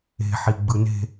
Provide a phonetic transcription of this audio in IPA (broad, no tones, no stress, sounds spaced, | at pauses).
e̤ ħ i ɡ͡b ɯ n e̤